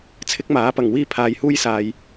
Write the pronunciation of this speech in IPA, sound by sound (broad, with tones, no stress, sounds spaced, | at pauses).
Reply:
t͡sʰ ɪ˥ k̚ m aː˨˥ p ɐ˨˩ ŋ w iː˥ pʰ aː˨˧ j h uː˥ j s aː˨ j